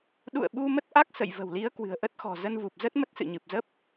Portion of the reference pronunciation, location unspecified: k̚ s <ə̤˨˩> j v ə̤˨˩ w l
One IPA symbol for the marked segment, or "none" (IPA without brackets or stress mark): ə̰˧˨